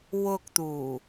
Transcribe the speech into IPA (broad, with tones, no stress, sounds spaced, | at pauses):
w ʊ˧ k̚ t̪ uː˨˩